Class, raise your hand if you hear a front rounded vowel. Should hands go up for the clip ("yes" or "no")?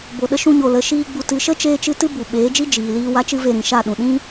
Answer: no